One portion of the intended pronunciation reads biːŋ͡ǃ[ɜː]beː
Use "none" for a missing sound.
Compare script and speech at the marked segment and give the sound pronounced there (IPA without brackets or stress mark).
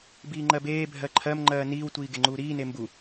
ɜ